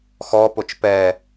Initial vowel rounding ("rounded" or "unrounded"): rounded